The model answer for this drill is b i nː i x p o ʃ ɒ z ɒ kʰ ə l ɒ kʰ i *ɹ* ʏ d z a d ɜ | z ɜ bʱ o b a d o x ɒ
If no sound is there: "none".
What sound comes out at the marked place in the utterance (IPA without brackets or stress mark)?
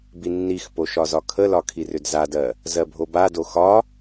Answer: r